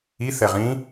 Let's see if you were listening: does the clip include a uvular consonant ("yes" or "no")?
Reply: yes